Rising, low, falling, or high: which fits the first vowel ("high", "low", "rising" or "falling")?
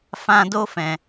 high